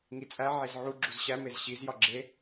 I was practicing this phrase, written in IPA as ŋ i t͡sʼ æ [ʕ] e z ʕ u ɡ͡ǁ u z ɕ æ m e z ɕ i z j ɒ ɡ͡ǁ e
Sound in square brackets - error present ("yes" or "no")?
no